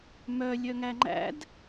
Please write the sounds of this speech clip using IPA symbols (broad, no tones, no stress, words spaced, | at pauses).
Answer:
mœ lʲœŋæŋ͡ǃæ̰d